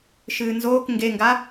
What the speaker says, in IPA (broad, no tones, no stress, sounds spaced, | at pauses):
ʃ ɨː n z oː k ŋ ɡ e ŋ ɡ a